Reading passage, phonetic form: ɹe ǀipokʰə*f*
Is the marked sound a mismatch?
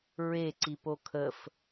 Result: no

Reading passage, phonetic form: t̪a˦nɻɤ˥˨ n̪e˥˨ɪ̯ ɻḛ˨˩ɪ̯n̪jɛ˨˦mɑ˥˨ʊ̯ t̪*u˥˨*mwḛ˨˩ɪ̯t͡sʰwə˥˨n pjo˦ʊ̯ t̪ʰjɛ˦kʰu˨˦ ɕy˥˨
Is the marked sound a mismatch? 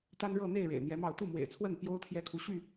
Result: no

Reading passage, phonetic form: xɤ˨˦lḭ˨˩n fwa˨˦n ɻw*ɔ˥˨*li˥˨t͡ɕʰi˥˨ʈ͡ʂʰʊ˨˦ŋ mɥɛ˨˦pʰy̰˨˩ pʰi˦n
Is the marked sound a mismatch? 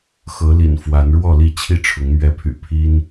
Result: no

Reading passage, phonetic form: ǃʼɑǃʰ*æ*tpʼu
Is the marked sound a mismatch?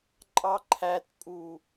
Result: no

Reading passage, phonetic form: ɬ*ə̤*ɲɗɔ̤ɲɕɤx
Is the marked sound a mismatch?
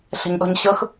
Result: no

